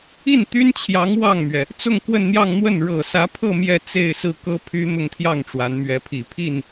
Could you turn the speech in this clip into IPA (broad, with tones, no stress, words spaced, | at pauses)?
i˥˩nt̪y˥nt͡ɕʰjɑ˧˥ŋ wɑ˥˩ŋmɥɛ˩ | t͡sʊ˥˧ŋ kwə˥˧nn̪jɑ˥˧ŋ n̪wə˥˩n ɻɤ˨˩sä˧˥pʰɤ˥˧ mjɛ˥˧ t͡se˥˧ɪ̯sɹ̩˥˩kɤ˥ pʰy˥n̪ʊ˥˧ŋt̪ʰjɑ˥˩ŋ ʈ͡ʂwa˧˥nmɥɛ˧˥pʰi˨˩ pʰi˥˩n